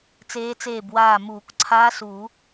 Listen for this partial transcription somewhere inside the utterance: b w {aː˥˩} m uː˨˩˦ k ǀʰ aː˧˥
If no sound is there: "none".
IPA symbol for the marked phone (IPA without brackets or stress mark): aː˥˩